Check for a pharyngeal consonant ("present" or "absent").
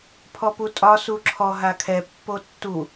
absent